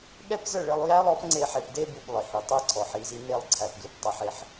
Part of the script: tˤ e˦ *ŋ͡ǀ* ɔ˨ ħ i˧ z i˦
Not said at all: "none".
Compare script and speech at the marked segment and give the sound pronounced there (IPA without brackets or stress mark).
ǀʰ